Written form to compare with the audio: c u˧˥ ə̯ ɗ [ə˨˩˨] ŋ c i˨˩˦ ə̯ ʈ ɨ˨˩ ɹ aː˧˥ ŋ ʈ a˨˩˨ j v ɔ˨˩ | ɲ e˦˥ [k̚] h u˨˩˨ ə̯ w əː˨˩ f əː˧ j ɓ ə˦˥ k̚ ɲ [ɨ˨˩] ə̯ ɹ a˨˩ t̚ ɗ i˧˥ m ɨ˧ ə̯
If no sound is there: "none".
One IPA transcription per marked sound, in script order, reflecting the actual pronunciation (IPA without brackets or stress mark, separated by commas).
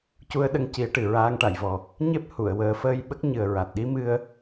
ə˧, p̚, ɨ˨˩